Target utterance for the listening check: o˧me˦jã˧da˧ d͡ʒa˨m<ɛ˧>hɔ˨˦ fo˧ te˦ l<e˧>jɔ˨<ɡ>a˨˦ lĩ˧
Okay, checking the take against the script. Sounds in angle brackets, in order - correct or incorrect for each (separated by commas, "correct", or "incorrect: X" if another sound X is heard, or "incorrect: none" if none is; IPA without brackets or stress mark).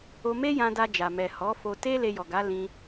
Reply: incorrect: ɛ˨, correct, correct